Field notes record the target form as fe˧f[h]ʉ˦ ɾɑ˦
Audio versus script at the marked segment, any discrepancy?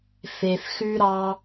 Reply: yes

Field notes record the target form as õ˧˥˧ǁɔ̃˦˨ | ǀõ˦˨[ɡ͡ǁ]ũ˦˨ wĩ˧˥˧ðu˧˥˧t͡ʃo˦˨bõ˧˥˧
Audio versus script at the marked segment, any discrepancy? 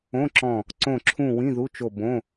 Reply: yes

